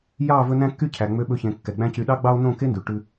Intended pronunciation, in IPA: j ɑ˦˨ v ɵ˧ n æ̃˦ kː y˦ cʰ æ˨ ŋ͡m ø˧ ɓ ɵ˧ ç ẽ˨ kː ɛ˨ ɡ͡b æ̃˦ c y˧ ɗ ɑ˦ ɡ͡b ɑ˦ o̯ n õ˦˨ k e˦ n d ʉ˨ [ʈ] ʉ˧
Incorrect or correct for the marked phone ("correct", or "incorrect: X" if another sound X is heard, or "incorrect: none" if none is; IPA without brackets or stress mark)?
correct